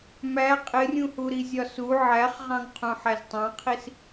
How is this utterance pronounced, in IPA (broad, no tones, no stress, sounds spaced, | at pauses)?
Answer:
m æ qʼ ɪ rʲ ũ h u ɾ i zʲ ɒ s u ʕ æ χ ʁ ɑ̃ ŋ qʰ ũ ħ æ z tˤ ɑ̃ qʰ i s